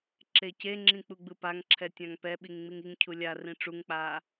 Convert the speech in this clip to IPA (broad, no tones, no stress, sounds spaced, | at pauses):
ǁ e c e ŋ͡ǁ ĩ k͡p u ɡ͡b ɯ p a ŋ ǁʰ ɛ tʲ ã ŋ p ɛ ɓ i ŋ ŋ͡m i ŋ i ŋ cʰ u lʲ a r ĩ ʈ͡ʂ u ŋ k͡p aː